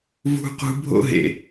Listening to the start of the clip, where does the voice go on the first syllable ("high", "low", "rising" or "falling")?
high